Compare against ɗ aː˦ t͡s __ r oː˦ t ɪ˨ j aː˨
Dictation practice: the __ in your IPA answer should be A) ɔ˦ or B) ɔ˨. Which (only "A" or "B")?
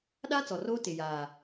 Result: B